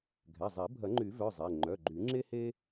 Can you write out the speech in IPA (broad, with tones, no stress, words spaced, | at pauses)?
ɡʱɛ˩˧˩zˤi˨˩˦ bʱɐ˨˩˦ŋ͡ǃy˨˩˦vœ˩˧˩ zˤe˩˧˩ ŋ͡ǃœ˩˧˩ɡ͡ǃy˨˩˦ ŋ͡ǁe˥he˥